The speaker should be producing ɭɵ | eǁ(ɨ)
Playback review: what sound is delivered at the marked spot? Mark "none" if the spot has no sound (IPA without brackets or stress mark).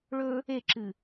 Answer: ɨ